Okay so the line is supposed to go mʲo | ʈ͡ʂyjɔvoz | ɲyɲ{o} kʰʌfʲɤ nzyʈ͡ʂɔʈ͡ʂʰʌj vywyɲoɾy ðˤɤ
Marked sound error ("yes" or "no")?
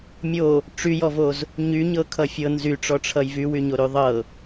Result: yes